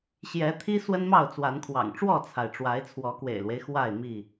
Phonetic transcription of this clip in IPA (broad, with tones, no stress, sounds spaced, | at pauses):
ɕ j ɛ˨˦ t̪ʰ i˦ s w ə˦ n m ɑ˥˨ ʊ̯ t͡s w a˨˦ n kʰ w ɑ̰˨˩ ŋ ʈ͡ʂ w ɔ˥˨ t͡sʰ a˩ ɪ̯ ʈ͡ʂ w a˨˦ ɪ̯ t͡sʰ w ɔ˨˦ k w ḛ˨˩ ɪ̯ l w e˦ ɪ̯ x w a˥˨ ɪ̯ m i˥˨